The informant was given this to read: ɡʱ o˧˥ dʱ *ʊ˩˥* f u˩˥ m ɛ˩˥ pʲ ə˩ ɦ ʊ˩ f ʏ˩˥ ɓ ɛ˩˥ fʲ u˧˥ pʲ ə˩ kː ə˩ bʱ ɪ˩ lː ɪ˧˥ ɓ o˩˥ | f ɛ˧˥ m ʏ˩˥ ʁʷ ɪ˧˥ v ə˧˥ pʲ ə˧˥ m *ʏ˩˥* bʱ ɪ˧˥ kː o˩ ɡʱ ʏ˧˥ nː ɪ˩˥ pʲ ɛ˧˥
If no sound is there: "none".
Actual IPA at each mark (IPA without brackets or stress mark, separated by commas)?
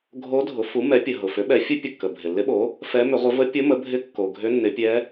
ʊ˩˥, ə˩˥